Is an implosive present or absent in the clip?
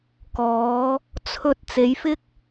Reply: absent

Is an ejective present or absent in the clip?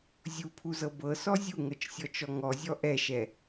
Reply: absent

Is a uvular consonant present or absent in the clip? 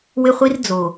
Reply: present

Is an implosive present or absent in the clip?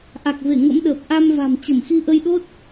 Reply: present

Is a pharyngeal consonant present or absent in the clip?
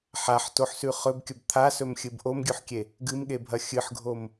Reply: present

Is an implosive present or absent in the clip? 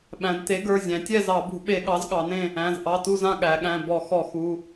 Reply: present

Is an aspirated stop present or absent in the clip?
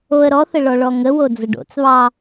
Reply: absent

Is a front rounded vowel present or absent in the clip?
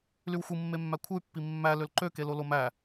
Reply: present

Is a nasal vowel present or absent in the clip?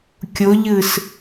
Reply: absent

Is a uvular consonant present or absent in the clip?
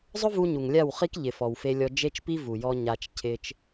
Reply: present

